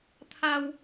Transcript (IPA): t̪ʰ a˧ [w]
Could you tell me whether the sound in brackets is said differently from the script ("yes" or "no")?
no